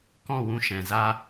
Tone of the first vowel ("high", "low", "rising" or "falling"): falling